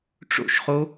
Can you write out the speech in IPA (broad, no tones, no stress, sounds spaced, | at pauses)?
ʈ͡ʂ o̰ ʃ χ o